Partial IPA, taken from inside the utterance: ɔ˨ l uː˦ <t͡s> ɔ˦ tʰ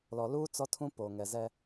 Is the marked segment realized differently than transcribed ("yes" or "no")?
no